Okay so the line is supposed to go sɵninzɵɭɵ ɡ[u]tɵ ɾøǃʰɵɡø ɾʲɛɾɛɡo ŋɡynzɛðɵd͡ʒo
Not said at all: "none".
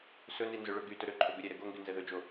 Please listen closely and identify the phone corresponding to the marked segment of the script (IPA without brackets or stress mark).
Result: y